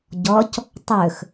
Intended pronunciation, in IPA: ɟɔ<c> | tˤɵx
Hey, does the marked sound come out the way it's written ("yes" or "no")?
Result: yes